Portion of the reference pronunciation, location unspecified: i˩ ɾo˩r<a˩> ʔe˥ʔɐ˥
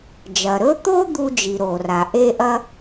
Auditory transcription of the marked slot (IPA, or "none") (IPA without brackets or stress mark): a˩